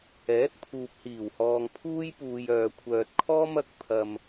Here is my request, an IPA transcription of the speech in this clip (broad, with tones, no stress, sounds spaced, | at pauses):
ɛː˨˥ t̚ pʰ uː˨ p̚ h iː˨˩ w h ɔː˨ ŋ pʰ uː˥ j p uː˨ j œː˨ kʷʰ œː˨ t̚ kʰ ɔː˥ m ɐ˨˥ k̚ pʰ ɐ˨ m